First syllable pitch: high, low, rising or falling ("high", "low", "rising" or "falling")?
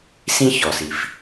high